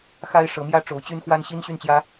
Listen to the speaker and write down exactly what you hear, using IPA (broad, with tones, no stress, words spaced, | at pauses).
xa˥ɪ̯ ʂɤ˧˥mjä˥ ʈ͡ʂo˧˥ʊ̯t͡ɕy˥nxwa˥n ɕi˥n ɕy˥˩nt͡ɕjä˥